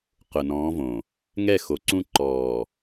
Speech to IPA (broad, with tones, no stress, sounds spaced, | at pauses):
q ʊ˨ n ɔ̃ː˨˦ v õ˨ | ŋ ɛ˦˨ x o˨ ǀ ũ˦ ǃ ɔː˨